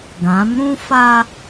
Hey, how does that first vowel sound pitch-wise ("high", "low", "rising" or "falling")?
rising